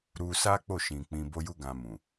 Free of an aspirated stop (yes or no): yes